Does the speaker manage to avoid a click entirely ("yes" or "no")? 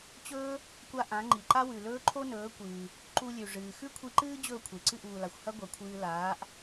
no